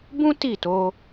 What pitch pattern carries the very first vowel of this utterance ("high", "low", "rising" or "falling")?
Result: high